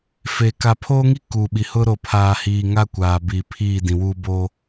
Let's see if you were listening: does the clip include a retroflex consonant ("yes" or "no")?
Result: no